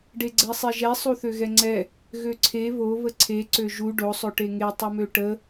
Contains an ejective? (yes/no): no